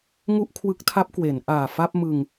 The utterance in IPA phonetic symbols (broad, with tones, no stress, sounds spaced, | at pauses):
ŋ u˥˩ ʔ kʰ w ɯ˦˥ k̚ tʰ a˦˥ p̚ k w e˩˦ n ʔ aː˨˩ f a˥˩ p̚ m ɯ˧ ŋ